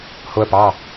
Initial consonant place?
glottal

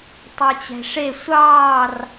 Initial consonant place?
alveolar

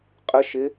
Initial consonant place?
uvular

